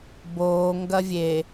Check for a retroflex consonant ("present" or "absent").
absent